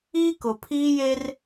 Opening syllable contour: high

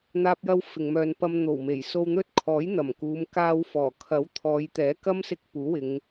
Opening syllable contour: high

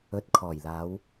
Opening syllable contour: rising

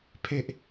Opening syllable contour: low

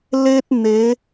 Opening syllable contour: high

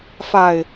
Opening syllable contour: low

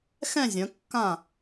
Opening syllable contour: falling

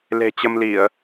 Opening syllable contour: low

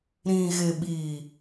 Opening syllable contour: low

